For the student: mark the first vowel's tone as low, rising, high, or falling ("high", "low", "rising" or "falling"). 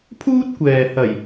high